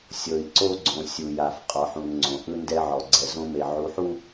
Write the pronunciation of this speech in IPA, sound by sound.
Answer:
sʲ ɤ˨ i̯ ǀ o˦ ɡ͡ǀ õ˨ sʲ u˨ j a˨ f qʼ ɔ˨ ħ ũ˨ n ŋ͡ǀ õ˨ ʔ ɯ˦ n d ɛ˦ ʕ ɔ˨ ɡ͡ǀ ɛ˨ z õ˦ m e˨ ʕ u˨ ħ u˦

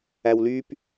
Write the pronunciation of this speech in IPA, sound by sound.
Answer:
æ w l y p

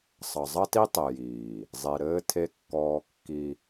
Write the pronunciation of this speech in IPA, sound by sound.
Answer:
sˤ ʌ˨ zˤ ʌ˦ t i˦ tˤ e˨ j iː˨ | zˤ e˨ ɾ ɘː˦ tʰ e˦ kː ɔː˦ kː i˦

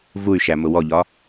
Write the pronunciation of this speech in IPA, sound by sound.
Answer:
v u y̯ ʃ æ m ʊ w ɔ ʎ ɒ

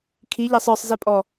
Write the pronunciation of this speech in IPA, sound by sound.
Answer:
kʰ i ʎ æ sˤ ə˞ sˤ z ɛ pʼ ɔ

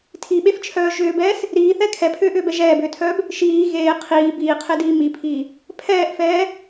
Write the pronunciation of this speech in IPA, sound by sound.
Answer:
tʰ i ɓ e f t͡ʃʰ œː ʒ ʏː b ɛː s | ɾ iː θ ɛ kʰ ɛ pʰ ʏː ʔ ʏː b ɛ ʒ ɛː b ʏː tʰ œː b | ʃ iː ɣ eː qʰ iː b iː qʰ e d iː m i pʰ iː | pʰ ɛː ʔ f ɛː

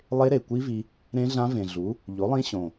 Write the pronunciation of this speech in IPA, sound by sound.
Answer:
lˠ e˦˥ ɾ e˨˩ kʷ i˦˥ v i˧ | ɾ ẽ˦˥ ɮ ã˦˥ v ẽ˨˩ ɮ u˩˥ | ʎ o˩˥ lˠ ĩ˦˥ ɕ õ˨˩

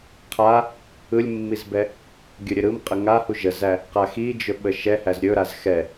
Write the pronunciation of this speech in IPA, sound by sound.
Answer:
qʰ a | ɯ lʲ mː i z b ɛ | ɡʲ ɵ ɾʲ ɘ ɾ ɯ m qʼ ə ŋ a h u ʒ ə z æ | q a x i d͡ʒ ɵ ɓ ə ʃ ɛ h æ z ɾʲ ɵ ɾ a z x ɛ

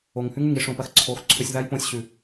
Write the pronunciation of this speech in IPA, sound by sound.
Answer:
o˨ ŋ h ʉ˦ ŋ ʉ˨ ŋ i˧ ʂ õ˨ p ɐ˧ x ǀʰ o˨ x ǀʰ ɵ˧ sʲ ð a˦ j p õ˧ sʲ ɕ ʉ˨

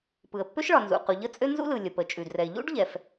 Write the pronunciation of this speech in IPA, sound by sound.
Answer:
p ɯ˩ ə̯ pː ø˥ ʃ ɭ ɒ˩ n z ṵ˩ q u˩ ʎ ə˥ t͡sʼ ø˥ n z ṵ˥ l ɯ˩ lʲ ə˩ p ə˩ t͡ʃʼ ʉ˩ d r ɛ˩ ɪ̯ ʎ ṵ˥ ɖ ʎ ɛ˩ f

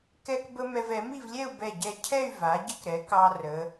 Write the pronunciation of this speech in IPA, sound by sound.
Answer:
k ɛ˥ k b ə˥ m ɛ˧ v ɛ˩˧ m i˥˧ v lʲ ɛ˥˧ u̯ b ɛ˧˩ ɟ ɛ˧˩ cʰ ɛ˥˧ y̯ v a˩˧ ɟ ə˥ k ɾ ɛ˩˧ k ɑ˧ r ə˩˧

